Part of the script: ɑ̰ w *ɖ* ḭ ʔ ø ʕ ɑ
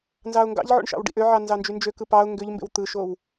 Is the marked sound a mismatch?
no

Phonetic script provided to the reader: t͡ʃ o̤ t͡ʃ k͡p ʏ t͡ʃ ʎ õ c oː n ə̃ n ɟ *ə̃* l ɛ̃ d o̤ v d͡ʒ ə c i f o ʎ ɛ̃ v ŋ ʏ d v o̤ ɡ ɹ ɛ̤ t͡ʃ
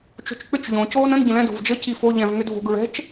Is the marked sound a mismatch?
no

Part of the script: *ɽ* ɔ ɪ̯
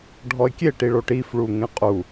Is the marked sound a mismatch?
yes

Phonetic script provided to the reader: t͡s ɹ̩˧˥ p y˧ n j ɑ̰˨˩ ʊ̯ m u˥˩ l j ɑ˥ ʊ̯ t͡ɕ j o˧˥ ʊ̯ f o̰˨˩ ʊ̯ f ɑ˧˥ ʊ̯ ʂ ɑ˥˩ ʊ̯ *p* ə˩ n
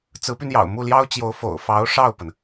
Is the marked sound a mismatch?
no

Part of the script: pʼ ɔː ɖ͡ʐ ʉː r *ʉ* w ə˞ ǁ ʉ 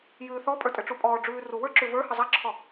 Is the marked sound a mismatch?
yes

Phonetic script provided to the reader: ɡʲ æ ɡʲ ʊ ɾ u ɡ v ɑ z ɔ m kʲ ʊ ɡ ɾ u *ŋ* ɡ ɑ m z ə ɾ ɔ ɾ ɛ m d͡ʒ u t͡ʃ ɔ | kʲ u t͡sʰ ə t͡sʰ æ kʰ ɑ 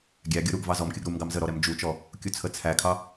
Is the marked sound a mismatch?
yes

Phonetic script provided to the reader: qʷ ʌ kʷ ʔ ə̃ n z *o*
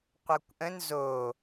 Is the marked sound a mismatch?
no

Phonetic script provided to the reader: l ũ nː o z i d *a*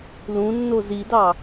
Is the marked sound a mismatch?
yes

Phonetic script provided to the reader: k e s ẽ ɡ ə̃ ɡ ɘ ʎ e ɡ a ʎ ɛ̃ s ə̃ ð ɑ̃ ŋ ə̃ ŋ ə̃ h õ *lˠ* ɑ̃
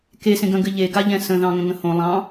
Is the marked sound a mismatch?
no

